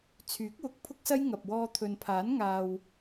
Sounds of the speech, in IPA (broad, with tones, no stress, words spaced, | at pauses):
t͡sʰyː˨˥k̚wʊ˨˥k̚pʰʊ˥k̚sɐ˥j ŋɐ˨p̚wɔː˧ t̪ʰɵ˨npʰaː˨˥n ŋaː˧w